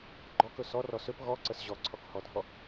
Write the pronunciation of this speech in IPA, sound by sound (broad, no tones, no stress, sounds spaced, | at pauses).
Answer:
ɡ͡ǃ ɔ k ɵ s ɔ r ɔ s ø p ɣ ɔ ǀ ə s ʑ ɔ ǀʰ ɔ k h ɔ dʱ ɔ